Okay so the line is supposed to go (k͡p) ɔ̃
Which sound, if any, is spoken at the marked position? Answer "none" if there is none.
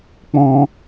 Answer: k͡p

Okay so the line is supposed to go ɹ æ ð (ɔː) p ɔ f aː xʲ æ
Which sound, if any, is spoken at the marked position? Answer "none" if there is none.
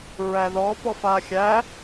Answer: ɔː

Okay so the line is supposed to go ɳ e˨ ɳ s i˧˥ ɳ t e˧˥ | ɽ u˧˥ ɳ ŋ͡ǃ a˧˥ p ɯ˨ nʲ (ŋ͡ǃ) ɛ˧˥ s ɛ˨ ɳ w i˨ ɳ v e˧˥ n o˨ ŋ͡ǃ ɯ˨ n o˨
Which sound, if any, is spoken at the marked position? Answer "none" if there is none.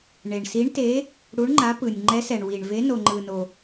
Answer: ŋ͡ǃ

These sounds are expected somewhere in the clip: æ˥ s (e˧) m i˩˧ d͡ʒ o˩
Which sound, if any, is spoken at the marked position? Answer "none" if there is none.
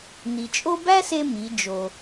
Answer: e˧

